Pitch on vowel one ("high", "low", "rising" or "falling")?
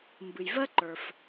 low